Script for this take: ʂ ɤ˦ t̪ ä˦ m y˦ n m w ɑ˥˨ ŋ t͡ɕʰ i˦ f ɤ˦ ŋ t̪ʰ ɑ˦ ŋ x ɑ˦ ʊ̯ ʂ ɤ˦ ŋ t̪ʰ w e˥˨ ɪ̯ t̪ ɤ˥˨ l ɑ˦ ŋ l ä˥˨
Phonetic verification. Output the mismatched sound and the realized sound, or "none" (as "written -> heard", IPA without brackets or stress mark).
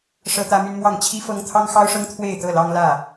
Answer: none